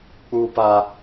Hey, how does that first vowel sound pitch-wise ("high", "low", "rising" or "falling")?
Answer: high